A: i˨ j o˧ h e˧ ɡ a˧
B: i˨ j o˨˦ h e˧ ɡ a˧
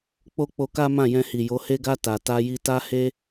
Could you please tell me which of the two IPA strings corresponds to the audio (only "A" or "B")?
B